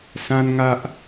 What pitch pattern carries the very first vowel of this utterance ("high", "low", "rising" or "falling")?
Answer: high